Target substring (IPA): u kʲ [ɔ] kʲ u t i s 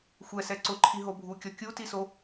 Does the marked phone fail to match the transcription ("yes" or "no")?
no